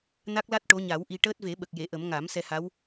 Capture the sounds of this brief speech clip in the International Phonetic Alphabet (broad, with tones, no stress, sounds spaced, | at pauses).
n a˦˥ k̚ l a˦˥ t̚ ʈ o˧˥ ɲ a˨˩˦ w ʔ i˧ ʈ əː˦˥ t̚ v e˨˩˦ ɓ ə˨˩ k̚ j e˨˩˨ ʔ ə˨˩˦ m ŋ a˨˩˦ m s ɛ˧ h a˧˥ w